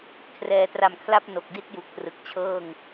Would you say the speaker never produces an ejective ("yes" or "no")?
yes